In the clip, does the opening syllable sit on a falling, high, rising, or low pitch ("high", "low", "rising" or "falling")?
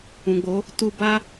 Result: low